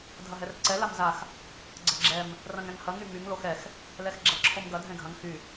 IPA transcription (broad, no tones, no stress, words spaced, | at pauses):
dʱɐɦɛrǀɛ lamzax | ɡ͡ǀɐɡ͡ǁɛm | rɐ̃ŋɛ̃ŋhɐ ŋymyŋ loxɛx | lɛxɡ͡ǁɐǁʰomɡɐ dʱɛ̃ɡʱɐ̃ŋ xy